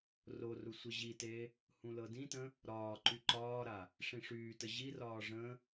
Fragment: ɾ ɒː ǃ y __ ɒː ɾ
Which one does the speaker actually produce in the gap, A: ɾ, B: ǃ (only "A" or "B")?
B